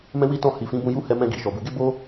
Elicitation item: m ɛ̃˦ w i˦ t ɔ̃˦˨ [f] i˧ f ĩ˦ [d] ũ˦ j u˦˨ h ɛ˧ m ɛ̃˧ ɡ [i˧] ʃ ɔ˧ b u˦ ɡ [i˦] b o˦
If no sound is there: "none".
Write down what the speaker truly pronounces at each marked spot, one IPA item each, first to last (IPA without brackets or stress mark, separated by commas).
h, b, i˨, e˦